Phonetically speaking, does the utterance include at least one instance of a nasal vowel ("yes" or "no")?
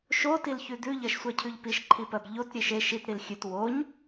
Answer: no